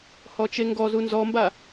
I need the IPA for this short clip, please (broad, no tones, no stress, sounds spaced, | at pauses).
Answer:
h ɔ t͡ʃ e ŋ ɡ ɔ z u n z ɔ m b a